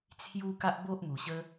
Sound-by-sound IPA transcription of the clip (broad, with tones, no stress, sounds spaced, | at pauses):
t͡sʰ j u˦ k a˦ ʔ b o˦ ʔ m u˨˩ ɕ ə˦